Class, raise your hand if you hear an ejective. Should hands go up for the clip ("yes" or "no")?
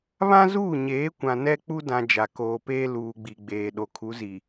no